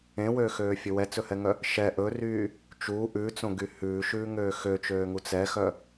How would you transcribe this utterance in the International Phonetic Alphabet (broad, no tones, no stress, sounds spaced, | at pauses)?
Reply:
ẽ w øː x øː fʲ ɵ w ɛ t͡s ɵ h ɛ ŋ œ | ʃ ɛ ʔ ɵ r yː | t͡ʃ u ʔ ʉ t͡s õ ɡ y h ʉː ʃ ʉː ŋ øː x ø t͡ʃ øː ŋ u t͡s ɛ x œ